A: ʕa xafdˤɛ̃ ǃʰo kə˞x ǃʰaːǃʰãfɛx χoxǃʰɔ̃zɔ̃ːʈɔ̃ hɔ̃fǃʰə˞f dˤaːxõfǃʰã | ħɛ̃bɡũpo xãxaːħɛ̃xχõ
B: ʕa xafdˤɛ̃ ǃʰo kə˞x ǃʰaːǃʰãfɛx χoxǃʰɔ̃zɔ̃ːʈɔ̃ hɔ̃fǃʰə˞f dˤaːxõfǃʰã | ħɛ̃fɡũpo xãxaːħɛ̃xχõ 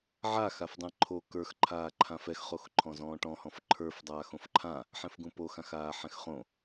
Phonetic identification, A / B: B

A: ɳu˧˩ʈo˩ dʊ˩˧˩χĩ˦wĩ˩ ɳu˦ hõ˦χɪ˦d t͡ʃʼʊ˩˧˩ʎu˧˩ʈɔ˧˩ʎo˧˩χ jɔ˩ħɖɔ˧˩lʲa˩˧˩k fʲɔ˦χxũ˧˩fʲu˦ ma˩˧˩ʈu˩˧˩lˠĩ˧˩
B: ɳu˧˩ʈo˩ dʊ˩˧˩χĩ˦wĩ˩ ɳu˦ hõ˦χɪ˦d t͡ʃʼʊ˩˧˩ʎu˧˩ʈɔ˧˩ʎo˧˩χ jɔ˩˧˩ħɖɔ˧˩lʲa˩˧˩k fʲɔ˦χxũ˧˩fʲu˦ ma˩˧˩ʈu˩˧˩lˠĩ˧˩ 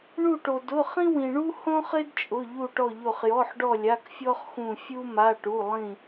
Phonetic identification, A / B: B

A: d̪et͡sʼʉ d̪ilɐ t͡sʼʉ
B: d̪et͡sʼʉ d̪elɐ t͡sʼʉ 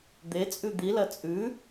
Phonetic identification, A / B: A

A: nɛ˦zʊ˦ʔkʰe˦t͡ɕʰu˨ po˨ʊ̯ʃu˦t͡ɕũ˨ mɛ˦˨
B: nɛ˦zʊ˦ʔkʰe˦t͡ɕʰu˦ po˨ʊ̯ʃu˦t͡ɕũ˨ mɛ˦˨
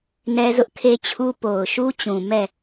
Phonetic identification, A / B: B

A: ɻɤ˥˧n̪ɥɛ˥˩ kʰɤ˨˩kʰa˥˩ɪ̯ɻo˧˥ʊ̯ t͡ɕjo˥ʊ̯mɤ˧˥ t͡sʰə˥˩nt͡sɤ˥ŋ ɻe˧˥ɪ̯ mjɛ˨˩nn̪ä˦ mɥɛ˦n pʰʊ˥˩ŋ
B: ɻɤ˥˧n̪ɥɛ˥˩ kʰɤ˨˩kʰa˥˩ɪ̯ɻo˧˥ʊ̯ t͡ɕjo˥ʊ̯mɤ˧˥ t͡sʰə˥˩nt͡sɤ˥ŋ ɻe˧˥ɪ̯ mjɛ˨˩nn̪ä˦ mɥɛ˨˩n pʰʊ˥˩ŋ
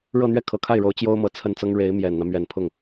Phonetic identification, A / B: B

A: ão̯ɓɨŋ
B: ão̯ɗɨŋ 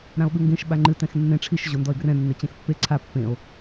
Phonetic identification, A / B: A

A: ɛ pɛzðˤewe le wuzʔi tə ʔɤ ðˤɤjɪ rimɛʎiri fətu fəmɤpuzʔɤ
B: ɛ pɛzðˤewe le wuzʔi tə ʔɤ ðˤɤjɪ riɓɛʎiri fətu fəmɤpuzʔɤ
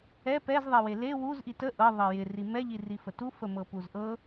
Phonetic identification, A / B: A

